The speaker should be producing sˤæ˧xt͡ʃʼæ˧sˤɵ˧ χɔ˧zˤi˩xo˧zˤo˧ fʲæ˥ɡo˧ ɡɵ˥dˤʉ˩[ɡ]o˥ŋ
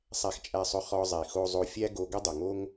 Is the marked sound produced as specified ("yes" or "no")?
no